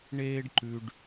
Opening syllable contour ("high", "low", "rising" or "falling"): high